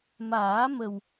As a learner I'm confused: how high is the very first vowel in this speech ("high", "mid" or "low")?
low